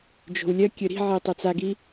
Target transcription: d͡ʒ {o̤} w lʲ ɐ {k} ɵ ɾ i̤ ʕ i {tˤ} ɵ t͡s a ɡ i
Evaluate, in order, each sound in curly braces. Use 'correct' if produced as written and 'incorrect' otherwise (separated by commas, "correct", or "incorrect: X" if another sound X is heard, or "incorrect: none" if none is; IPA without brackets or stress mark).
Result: correct, incorrect: kʲ, correct